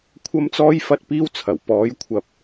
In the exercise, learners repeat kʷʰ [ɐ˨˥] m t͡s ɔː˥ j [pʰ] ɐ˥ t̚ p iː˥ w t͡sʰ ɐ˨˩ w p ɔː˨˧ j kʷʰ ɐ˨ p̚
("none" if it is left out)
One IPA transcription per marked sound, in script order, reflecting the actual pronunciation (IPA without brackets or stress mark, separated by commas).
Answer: ɐ˥, f